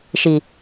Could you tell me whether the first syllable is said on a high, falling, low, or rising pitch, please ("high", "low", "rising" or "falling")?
low